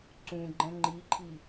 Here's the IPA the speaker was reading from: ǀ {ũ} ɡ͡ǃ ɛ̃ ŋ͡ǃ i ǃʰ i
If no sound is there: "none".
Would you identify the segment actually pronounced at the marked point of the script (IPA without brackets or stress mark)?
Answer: ũ